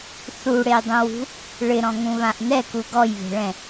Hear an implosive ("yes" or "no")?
no